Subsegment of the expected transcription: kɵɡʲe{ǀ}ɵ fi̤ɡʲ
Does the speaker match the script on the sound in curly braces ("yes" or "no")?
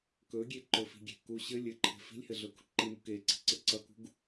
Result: no